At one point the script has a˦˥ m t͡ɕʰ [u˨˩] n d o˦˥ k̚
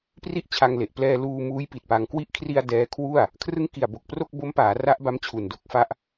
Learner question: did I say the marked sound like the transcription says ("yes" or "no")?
yes